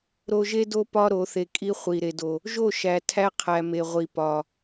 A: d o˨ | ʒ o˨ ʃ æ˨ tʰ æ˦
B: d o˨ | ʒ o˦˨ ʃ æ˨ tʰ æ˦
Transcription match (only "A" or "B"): B